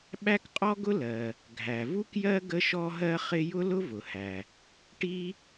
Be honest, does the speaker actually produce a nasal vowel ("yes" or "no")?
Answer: no